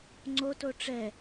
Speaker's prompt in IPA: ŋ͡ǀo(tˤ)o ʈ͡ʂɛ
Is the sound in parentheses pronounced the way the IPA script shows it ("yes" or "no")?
no